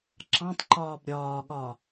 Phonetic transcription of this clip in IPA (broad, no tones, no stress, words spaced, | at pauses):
ǁɑ̃tˤǃɒːb ɾʲɒːɠɒː